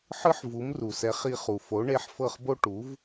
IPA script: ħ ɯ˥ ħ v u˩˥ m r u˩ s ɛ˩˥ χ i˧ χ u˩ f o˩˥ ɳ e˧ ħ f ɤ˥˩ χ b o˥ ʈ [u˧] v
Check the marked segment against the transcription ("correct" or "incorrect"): incorrect